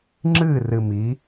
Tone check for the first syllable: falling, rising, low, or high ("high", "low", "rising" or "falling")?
falling